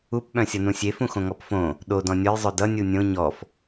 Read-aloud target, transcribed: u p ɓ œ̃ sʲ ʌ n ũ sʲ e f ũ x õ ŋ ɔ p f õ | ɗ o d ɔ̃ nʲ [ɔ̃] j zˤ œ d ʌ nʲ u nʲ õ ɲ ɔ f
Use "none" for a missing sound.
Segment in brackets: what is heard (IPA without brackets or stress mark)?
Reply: ɔ